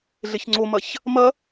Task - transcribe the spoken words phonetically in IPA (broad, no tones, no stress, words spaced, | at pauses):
ɮeçŋ͡ǀomɐç | mɐ